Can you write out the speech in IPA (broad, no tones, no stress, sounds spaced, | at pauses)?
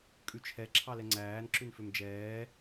kʼ ʉ t͡ʃʰ ɛ ǁʰ ɑ l ɛ ŋ͡ǀ æː n ǁ ʉ n f ø m d͡ʒ ɛː